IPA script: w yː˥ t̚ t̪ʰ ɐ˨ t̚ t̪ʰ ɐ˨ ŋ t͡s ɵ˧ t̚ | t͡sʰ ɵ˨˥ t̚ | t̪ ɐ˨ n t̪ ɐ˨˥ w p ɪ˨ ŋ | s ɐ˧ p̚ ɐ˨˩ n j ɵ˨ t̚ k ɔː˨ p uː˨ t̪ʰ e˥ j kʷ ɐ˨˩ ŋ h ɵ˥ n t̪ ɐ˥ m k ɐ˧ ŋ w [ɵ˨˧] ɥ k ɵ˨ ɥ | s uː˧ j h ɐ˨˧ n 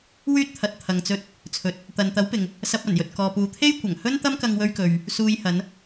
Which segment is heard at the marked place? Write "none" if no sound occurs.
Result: ɵ˧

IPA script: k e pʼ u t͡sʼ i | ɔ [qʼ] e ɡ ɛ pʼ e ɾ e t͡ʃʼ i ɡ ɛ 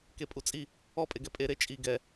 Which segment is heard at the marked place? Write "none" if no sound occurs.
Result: pʼ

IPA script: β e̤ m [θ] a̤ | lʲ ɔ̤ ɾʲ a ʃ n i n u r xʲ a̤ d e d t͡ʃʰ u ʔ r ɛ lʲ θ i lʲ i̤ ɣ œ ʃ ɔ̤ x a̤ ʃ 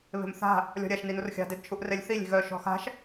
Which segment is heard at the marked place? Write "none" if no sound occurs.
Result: θ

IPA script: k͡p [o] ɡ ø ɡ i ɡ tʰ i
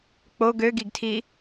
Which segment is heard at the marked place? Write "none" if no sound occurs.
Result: o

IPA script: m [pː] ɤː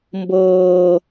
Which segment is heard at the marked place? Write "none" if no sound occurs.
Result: b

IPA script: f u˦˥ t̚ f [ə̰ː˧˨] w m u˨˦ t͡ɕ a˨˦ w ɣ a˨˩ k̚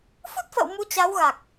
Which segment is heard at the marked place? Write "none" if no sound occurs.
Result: ə̰ː˧˨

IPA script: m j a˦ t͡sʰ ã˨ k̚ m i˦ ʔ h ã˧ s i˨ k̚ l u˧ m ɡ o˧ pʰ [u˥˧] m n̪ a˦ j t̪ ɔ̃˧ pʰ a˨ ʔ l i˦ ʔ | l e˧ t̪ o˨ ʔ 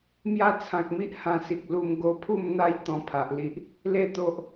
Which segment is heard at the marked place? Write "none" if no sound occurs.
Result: u˥˧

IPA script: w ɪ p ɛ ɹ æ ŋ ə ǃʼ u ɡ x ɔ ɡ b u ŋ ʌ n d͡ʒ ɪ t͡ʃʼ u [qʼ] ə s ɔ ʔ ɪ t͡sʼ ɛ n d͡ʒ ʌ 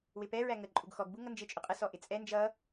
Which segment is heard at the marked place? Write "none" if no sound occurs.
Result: qʼ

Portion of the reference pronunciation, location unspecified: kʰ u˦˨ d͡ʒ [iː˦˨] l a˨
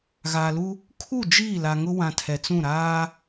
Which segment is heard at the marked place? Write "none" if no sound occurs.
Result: iː˦˨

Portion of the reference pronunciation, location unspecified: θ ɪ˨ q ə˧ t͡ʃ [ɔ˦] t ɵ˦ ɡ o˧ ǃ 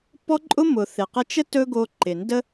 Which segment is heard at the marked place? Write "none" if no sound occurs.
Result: ə˦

